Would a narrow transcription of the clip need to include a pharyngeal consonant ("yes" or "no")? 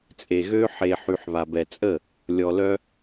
yes